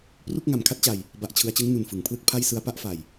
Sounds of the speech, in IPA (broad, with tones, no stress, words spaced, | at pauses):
pru˥˩k̚ŋa˨˩m kʰa˥˩t̚t͡ɕa˨˩j | ba˨˩ʔt͡ɕʰɯ˩˦a̯t͡ɕɯ˦˥ŋ nu˨˩nfɯ˩˦ŋpʰlɯ˥˩k̚ pʰa˥˩jsɯ˦˥a̯ pa˦˥ʔfa˨˩j